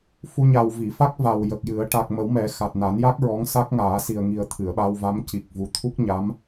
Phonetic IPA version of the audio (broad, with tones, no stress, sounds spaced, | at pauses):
f u˧ ɲ a˨˩ w v i˨˩˨ f a˦˥ k̚ v a˨˩ w j ə˨˩ k̚ j ɨ˨˩˦ ə̯ ʈ a˨˩ k̚ m ə˨˩˦ w m ɛ˨˩˦ x a˨˩ t̚ n a˨˩˦ n j a˦˥ k̚ ɹ ɔ˧˥ ŋ s a˦˥ k̚ ŋ aː˨˩˦ s i˨˩ ə̯ ŋ i˨˩ ə̯ t̪ʰ ɨ˨˩˨ ə̯ ɓ a˧ w v a˧˥ m c i˨˩ k̚ v u˨˩ t̪ʰ u˦˥ k̚ ɲ a˧˥ m